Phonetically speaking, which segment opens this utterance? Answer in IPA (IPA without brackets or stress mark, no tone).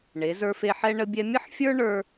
ɳ